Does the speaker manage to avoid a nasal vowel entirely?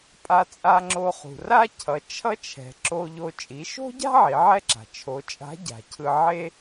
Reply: yes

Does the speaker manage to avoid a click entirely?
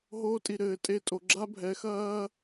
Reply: no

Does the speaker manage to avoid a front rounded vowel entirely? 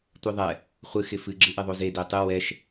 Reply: yes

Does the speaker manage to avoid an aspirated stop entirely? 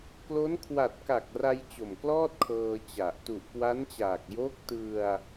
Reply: no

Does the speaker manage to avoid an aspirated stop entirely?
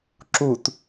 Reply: yes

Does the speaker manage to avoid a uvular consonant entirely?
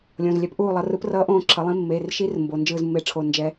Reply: yes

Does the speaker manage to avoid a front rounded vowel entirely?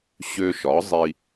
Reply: no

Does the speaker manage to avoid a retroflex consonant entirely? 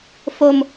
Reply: yes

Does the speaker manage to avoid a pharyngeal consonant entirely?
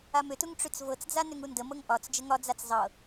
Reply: yes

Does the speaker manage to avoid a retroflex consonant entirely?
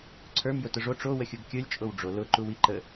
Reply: no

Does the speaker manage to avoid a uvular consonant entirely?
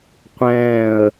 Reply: no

